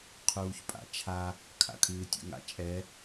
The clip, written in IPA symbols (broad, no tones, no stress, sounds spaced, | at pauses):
qʰ uː ç pʼ a̰ t͡ʃʰ a | kʰ a̰ kʰ ɨː tʲ ṵ ŋ a̰ t͡ʃʼ ɛ